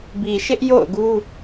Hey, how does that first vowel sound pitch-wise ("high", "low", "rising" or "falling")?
low